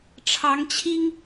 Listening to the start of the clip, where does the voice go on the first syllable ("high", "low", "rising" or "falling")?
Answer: rising